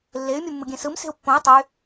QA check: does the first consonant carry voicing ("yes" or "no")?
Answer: yes